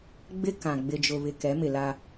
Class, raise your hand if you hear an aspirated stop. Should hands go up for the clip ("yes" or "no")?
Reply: no